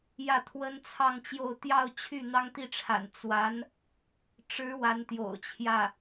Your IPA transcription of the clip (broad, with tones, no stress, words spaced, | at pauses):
jä˥˩t̪ʰwə˥nt͡sʰɑ˥˧ŋt͡ɕjo˥˧ʊ̯ t̪jɑ˥˧ʊ̯t͡ɕʰy˥˩ n̪ɑ˥ŋt̪i˥˩ʈ͡ʂʰa̰˨˩n t͡swa˧˥n | ʈ͡ʂɻ̩˧˥ wa˧˥nt̪jo̰˨˩ʊ̯t͡ɕʰjä˥˩